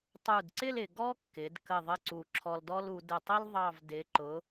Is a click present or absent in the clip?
present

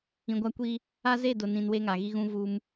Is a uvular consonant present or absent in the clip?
absent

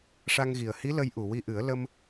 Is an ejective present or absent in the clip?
absent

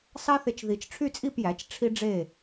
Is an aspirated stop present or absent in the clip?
present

